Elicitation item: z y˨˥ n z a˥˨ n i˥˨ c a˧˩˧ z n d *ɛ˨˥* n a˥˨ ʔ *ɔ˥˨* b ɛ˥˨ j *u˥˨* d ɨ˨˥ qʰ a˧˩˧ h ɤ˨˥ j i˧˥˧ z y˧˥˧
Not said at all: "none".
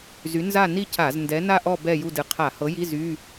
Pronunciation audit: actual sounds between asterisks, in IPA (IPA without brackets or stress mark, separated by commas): ɛ˨˥, ɔ˥˨, u˥˨